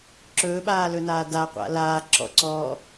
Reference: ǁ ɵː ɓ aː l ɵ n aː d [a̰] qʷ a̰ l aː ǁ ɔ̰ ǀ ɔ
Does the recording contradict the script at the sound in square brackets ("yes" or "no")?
yes